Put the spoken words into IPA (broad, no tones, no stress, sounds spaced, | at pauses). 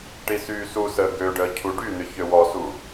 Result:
ʈ i s yː s u s əː ɡ ø ɖ əː cʰ u ɖ y n̪ ʏ ç ø w ɔ s u